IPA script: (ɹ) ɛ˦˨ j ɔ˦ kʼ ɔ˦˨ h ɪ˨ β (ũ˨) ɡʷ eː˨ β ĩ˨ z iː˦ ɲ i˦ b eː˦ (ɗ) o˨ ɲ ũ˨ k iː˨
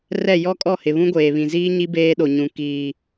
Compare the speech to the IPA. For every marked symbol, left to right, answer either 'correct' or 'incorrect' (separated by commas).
incorrect, incorrect, correct